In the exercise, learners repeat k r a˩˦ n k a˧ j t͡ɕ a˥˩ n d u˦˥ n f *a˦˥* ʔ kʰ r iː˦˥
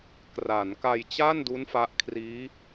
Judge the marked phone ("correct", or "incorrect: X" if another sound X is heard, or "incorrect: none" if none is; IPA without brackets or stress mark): correct